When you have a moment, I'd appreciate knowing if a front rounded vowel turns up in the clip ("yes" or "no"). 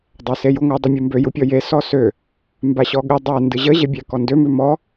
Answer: yes